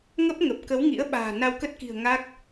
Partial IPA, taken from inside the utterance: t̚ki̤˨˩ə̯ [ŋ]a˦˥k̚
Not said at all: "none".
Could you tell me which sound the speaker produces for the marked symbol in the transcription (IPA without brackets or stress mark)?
ŋ